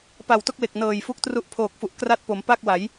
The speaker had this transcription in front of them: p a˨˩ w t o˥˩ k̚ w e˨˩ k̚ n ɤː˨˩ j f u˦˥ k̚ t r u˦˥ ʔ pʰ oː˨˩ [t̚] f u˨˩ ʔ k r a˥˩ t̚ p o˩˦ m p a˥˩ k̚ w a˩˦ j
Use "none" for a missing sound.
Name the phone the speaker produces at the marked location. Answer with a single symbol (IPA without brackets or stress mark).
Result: k̚